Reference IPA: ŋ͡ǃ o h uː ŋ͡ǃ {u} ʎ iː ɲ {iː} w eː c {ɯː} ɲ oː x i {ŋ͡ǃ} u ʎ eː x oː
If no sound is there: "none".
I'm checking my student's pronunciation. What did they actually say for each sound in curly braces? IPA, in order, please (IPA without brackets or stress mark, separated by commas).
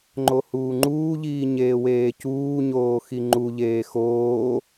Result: uː, eː, uː, ŋ͡ǃ